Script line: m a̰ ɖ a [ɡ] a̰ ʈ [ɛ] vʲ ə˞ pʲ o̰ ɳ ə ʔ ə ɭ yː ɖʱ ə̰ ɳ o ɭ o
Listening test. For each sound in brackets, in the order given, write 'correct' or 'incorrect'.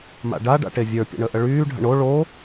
incorrect, incorrect

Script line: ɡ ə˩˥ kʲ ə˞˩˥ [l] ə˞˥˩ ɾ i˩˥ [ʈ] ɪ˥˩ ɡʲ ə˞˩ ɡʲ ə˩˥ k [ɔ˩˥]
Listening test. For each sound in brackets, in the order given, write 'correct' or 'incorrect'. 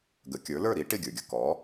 correct, correct, correct

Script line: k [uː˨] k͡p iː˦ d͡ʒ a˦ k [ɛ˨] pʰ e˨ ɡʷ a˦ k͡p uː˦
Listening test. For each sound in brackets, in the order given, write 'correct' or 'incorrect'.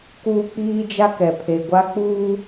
incorrect, correct

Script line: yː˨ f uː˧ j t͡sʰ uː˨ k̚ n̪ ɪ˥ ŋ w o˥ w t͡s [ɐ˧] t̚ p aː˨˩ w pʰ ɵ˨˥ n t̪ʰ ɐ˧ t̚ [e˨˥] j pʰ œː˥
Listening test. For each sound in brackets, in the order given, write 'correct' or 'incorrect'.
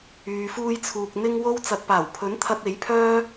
incorrect, correct

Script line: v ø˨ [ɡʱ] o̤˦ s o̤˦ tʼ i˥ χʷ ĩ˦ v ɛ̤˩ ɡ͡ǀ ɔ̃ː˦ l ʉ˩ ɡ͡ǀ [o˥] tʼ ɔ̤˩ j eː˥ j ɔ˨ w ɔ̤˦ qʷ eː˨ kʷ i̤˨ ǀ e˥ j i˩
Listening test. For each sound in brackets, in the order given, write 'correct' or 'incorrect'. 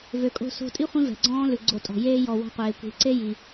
incorrect, incorrect

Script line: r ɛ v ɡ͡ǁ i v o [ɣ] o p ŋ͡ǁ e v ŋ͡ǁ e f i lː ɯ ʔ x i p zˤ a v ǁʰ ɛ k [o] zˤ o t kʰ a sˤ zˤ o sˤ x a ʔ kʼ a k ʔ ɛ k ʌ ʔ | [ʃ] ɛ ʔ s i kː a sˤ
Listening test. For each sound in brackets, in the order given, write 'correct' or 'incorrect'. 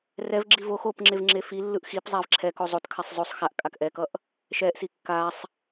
incorrect, correct, correct

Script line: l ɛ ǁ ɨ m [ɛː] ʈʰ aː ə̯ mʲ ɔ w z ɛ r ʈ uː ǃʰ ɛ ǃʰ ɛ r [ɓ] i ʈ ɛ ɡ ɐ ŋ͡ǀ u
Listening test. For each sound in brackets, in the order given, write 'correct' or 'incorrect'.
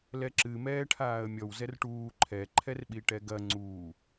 correct, correct

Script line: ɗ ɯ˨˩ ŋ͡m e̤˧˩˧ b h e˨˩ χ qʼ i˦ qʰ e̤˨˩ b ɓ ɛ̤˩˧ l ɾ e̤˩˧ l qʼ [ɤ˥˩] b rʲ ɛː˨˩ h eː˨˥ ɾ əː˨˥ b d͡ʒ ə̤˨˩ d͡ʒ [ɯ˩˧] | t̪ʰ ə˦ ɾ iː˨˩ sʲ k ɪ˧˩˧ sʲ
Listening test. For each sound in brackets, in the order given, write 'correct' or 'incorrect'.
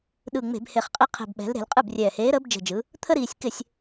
incorrect, correct

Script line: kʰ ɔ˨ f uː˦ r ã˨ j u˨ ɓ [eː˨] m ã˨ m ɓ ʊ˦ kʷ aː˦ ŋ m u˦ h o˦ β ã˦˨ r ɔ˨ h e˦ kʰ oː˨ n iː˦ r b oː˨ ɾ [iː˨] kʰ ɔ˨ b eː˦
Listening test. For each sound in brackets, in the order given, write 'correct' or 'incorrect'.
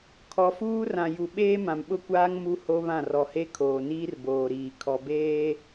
incorrect, correct

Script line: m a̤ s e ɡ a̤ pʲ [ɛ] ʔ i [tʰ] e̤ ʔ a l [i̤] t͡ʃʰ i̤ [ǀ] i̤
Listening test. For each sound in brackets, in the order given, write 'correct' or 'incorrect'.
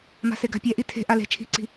correct, correct, incorrect, correct

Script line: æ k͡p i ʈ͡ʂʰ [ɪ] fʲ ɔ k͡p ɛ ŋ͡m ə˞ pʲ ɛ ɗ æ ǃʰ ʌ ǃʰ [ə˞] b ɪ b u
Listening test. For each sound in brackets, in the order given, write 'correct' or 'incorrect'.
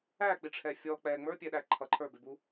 incorrect, correct

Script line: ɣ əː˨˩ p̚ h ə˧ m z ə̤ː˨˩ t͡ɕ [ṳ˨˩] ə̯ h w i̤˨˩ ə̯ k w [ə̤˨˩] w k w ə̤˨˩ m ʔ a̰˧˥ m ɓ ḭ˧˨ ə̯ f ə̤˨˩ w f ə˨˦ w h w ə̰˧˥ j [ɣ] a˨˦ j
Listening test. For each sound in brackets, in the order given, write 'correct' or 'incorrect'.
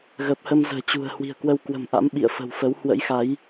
correct, incorrect, incorrect

